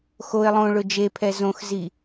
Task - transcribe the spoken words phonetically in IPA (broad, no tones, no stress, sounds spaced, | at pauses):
x o ɪ̯ lˠ õ ɭ ʊ d͡ʒ e pʰ ɛ z õ x z i